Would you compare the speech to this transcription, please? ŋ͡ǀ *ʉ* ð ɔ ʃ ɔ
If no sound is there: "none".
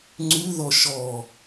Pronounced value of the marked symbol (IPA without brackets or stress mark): ʉ